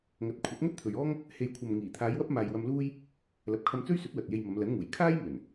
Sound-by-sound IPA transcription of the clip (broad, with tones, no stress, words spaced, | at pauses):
ŋɐ˨t̚kʷʰɐ˨˥t̚ ŋɐ˥t̚t̪ʰɵ˨ɥɔː˥ŋ | he˨j kʷʰɐ˨mŋiː˨˩t̪ʰaː˨˧j wɐ˥p̚maː˨jwɐ˧mluː˥j | lɐ˨p̚kʰɐ˧mt͡sɵ˥ɥsɵ˨˥t̚ wɐ˨t̚je˧jmɐ˨˧m lɐ˨˥nŋuː˨˩j kʰaː˥j mɵ˨˩n